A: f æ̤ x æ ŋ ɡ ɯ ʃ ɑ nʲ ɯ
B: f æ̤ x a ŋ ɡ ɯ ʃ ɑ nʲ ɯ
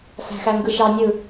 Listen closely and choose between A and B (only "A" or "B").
A